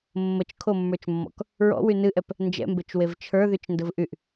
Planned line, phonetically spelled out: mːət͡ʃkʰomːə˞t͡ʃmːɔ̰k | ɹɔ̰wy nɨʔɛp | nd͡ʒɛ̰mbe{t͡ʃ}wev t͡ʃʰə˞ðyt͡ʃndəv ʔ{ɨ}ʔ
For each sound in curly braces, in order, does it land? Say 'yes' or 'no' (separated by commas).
yes, no